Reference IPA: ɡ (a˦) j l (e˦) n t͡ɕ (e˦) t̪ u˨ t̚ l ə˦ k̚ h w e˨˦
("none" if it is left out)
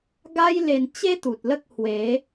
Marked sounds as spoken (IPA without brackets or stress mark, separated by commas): a˦, e˧, e˦